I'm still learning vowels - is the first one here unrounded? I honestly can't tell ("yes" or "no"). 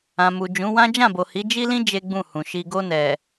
yes